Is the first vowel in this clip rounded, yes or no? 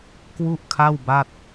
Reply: yes